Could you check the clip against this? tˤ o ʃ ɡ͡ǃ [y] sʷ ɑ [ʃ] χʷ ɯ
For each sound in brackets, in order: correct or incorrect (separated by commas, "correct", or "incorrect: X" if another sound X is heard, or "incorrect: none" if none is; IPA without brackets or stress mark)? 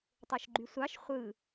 correct, correct